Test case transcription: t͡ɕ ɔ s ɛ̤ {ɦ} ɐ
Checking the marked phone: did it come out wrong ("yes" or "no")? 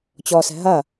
no